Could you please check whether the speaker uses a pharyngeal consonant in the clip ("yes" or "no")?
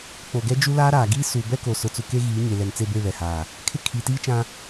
no